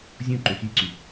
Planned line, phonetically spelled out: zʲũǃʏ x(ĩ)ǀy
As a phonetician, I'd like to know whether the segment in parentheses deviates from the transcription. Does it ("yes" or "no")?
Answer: yes